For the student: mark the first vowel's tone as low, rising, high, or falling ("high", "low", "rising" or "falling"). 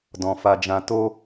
low